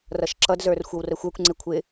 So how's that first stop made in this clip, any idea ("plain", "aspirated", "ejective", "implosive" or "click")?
click